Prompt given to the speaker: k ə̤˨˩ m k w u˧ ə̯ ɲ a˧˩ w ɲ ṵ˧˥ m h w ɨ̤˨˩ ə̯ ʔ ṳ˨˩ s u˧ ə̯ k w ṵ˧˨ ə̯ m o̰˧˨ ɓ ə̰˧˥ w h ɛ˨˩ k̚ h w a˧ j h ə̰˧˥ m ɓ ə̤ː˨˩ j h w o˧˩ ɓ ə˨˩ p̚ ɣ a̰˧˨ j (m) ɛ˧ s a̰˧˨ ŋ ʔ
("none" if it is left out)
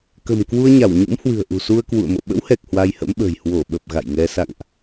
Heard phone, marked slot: ŋ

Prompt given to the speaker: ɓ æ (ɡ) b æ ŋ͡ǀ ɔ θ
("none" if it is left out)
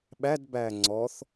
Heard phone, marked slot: d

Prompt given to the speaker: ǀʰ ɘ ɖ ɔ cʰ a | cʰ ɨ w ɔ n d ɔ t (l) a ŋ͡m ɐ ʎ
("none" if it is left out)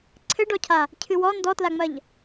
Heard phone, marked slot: l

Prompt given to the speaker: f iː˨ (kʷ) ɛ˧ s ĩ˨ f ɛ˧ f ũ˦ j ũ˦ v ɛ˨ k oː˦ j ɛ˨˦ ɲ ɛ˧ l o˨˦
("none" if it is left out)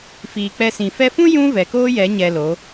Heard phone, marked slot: k͡p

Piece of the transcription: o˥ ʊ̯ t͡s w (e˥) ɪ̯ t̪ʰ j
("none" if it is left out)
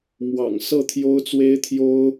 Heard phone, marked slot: e˥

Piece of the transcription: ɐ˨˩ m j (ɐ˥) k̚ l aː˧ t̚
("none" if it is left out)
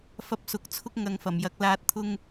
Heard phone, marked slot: ɐ˧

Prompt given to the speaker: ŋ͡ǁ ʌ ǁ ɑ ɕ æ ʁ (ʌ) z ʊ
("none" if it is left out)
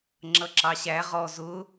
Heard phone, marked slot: ɔ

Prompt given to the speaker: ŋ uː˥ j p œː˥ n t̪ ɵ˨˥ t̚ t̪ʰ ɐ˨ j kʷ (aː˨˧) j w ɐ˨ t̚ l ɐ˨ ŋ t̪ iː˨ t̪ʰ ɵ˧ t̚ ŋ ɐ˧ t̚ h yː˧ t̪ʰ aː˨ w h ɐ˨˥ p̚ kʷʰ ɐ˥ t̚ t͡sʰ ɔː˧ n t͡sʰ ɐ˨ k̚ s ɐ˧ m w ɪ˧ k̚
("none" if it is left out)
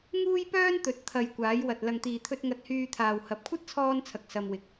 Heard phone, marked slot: aː˨˧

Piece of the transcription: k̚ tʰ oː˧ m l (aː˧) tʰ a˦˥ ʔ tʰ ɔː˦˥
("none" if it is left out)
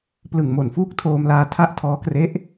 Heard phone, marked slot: aː˧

